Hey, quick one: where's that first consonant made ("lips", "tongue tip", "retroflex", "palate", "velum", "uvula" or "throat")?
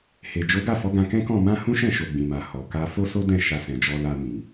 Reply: throat